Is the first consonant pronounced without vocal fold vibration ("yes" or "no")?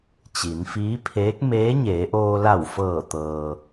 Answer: yes